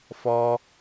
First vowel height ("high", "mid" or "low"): mid